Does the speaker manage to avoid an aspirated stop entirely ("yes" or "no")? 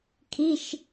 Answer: no